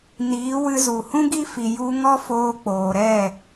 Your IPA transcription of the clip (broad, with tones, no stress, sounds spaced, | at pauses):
n iː˨˦ w ɨ˧ z u˨ h ũ˦ ɡ i˦ f i˧ j u˧ ŋ ɔ˦ f oː˧ k͡p oː˨ ɾ ɛ˦˨